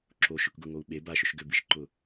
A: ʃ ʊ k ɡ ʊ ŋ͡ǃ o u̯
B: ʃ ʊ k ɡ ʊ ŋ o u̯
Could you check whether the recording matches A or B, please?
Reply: B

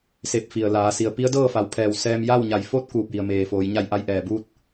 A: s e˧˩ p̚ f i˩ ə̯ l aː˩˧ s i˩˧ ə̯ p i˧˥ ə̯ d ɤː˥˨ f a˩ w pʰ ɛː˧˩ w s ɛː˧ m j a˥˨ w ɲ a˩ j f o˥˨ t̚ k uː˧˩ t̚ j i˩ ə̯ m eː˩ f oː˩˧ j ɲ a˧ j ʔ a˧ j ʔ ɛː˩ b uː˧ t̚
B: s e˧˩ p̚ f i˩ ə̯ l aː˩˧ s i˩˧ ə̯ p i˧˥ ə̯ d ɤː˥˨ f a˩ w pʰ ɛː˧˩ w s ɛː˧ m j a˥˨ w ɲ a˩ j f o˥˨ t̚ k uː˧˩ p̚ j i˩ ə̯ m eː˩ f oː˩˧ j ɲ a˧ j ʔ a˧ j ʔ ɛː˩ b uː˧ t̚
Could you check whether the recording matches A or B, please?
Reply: B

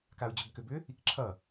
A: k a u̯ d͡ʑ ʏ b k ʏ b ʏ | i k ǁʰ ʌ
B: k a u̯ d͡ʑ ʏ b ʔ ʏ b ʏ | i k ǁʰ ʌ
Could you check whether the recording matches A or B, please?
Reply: A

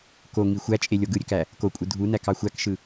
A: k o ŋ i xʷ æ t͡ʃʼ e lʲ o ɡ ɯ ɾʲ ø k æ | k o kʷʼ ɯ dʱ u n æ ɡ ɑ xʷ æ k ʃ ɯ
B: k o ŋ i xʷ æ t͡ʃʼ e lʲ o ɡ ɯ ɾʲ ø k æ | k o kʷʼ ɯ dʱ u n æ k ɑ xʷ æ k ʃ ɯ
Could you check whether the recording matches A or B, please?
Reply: B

